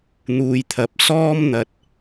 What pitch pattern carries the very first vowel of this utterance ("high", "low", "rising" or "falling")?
low